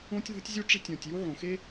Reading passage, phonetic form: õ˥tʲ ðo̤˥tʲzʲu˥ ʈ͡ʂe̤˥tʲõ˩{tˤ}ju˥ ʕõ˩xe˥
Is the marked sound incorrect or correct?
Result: incorrect